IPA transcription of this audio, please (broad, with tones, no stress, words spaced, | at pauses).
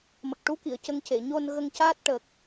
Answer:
mə˨˩k̚ʈu˧˥ki˨˩˨ə̯ cə˧˥ŋce˨˩˨ ɲo˧n ɣə˧ŋcaː˦˥t̚ʈə˨˩k̚